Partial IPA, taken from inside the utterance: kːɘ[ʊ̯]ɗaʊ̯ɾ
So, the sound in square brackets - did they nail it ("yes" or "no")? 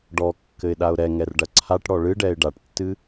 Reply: no